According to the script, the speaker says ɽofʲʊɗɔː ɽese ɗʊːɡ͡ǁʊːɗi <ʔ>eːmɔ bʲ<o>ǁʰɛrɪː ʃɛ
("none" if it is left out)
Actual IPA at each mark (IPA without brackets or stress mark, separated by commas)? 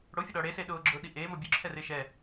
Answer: ʔ, u